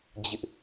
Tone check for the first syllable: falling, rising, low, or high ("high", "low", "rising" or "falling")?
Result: high